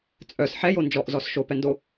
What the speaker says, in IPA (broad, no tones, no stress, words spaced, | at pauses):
t͡sʼœs ħɛjo nd͡ʒɔʔzɔs ʃopɛndo